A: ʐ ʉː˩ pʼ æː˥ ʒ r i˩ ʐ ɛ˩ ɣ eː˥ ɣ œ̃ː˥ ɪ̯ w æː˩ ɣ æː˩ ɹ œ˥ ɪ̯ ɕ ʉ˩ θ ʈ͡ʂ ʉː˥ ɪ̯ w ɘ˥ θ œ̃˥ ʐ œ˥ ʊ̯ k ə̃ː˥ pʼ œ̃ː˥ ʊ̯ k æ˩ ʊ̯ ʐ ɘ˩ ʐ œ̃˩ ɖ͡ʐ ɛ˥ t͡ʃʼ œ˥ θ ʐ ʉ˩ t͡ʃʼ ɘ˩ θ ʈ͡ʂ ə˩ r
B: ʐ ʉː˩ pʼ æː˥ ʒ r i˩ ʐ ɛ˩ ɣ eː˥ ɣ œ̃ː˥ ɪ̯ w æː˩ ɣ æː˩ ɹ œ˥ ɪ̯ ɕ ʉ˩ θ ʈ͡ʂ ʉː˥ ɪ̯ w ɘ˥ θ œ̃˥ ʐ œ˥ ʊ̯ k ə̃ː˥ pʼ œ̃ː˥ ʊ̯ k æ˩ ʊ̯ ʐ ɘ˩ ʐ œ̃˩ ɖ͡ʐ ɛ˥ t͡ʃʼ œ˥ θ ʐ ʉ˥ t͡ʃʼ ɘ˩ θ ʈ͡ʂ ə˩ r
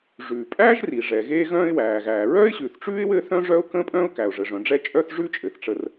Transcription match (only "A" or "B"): B